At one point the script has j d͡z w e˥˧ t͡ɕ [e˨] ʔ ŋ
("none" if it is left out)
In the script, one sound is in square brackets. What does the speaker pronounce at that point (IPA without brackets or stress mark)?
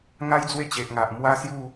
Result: e˨